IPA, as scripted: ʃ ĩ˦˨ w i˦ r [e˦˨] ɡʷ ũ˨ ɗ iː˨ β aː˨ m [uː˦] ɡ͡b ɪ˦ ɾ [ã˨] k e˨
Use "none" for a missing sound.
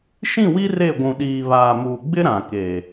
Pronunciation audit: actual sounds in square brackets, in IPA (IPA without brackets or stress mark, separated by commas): e˦˨, uː˨, ã˨